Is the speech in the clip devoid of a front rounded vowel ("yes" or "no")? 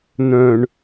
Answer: no